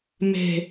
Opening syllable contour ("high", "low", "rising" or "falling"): low